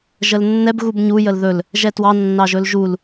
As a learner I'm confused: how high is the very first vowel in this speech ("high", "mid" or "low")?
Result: mid